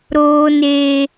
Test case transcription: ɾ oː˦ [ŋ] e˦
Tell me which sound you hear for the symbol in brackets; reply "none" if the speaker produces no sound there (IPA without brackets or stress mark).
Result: n